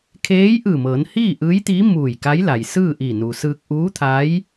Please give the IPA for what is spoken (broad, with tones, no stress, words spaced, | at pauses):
kʰeː˧˥jʔɯː˧˩mɤː˩˧n hiː˥˨ʔɯː˧˥jt̪iː˧˥ muː˧˩j ka˧˥jla˩jsɯː˥˨ ʔi˧˩nu˩sɯː˧k̚ ʔuː˧˥t̪ʰa˧˥j